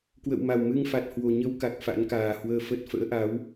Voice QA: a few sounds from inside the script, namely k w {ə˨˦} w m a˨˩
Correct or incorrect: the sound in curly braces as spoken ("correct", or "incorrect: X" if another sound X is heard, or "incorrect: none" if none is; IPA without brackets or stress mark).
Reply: incorrect: ə̰˧˨